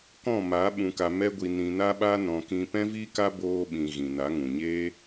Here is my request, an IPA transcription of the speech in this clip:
k ɔ̃˦˨ m a˨˦ ɓ ũ˨ k a˨ m ɛ˧ ɡʷ i˨ n ĩ˨ n a˧ ɓ a˧ n ɔ̃˨ k ĩ˧ p ɛ̃˦ v i˦ k a˦ b oː˧ ɓ ĩ˨ ɣ ĩ˨ n a˨˦ ŋ ũ˨ ɲ e˦

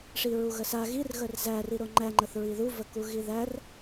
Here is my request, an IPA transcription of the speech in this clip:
ʂ i ɹ u ɣ ə s a ɣ i r ɣ ə r z æ r i ɾ o ŋ͡ǃ æ ŋ͡ǃ ə θ ɹ i ð u v ə k u ɣ i ð æ r

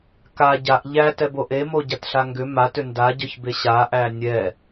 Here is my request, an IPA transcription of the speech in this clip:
k a ɟ a ʔ ʎ æ t ɛ b o ʔ e m o ɟ a t ɬ a ŋ ɡ ʏ m a t ʏ n d a ɟ œ ç b e ɕ a ʔ æ nʲ ɛ

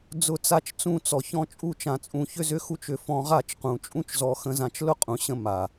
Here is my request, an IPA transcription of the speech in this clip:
d͡z ʊ˦˨ t͡s a˦ t͡ʃ t͡s ũ˦˨ t͡s ɔ˨ ç ɔ̃˧ t͡ʃʼ u˦ t͡ʃ ã˧ t͡sʼ ũ˧ ç ʏ˦ z ʏ˦ x u˦ t͡ʃ ʏ˧ f ɔ̃˧ ʁ a˦˨ t͡ʃ q ũ˨ t͡ʃʼ ũ˦ t͡ʃ z ɔ˧ x ə̃˦ z ã˦ t͡ʃ l ʊ˦ qʼ ũ˨ ɕ ə̃˧ m a˨

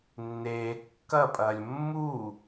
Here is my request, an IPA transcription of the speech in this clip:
nː eː kː ɐ pʼ ɐː lʲ mː u

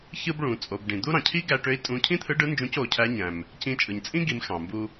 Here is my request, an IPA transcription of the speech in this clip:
ç ɯ˥ b ɭ ũ˩˧ t͡sʼ o˩˧ b ɖ ĩ˩ d̪ u˥ ɾ ɑ̃˩ cʰ i˥ ɡ æ˧ ʈ ø˧˥ i̯ tʼ ũ˧˥ cʰ ĩ˥ t̪ʰ ɯ˧˥ ɖ ɯ˧˥ n d͡ʒ ũ˧˥ c o˩˧ cʰ æ˧˥ ɲ æ̃˩ m | c ĩ˧ t͡ʃʼ ɯ˩ ɲ t͡sʼ ĩ˥ ɡ i˩˧ m x ɑ̃˩ m b u˧

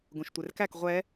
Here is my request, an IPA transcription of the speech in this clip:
ɡ ũ ʃ tʷ e r k æ k ʁʷ ɛ

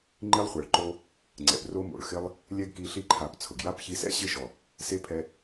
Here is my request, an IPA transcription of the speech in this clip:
ŋ͡ǃ i˦ lˠ χʷ ɛ˨ ɭ ǃ o˧ | ŋ͡ǀ ɛ̰˨ p r o˦ m o̰˨ ɭ x ɪ˦ lˠ | lʲ ɛ˦ ɡ k i˧ ɬ i˦ ǃʰ a˨˦ p t͡sʰ ʊ˨ ɡ j a˦ p ç i˧ s ɛ̰˦ ɕ ɪ˦˨ ʃ ɔ˨ | s e˦ pʰ ɛ˧

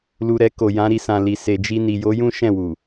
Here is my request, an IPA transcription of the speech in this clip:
l u˨ ɾ ɛ˧ k o˨ j ã˨˦ ɾ i˧ s ã˨ l i˨ s e˨ d͡ʒ i˧ n i˨ j o˨˦ j ũ˦ ʃ ɛ̃˦˨ w u˨

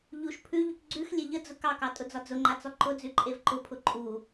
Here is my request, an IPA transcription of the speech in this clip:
ʎ u ʃ pʰ ʉ ʎ ʉ k ɡ͡ǀ ʉ x lʲ e ʎ ə d͡z ʊ k ɑ k ɑ tʼ ʊ d͡z ɒ d͡z ʊ ŋ͡ǃ a t͡s ɔ ǃ ʊ d͡z ʉ ǃʼ e v ǃ ʊ pʰ ʊ ǃʼ u

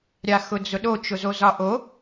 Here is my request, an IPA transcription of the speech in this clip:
ɾʲ a x ʊ d͡z ʊ ɗ o t͡ʃ ʊ z o z ɒ ʔ o

